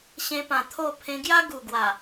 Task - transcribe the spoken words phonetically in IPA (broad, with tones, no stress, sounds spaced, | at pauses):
ɕ ẽ˧ p ã˨˩ t̪ʰ o˥˧ pʰ ẽ˧ ɡ j a˦ ɡ u˨˩ ɡ w a˨˩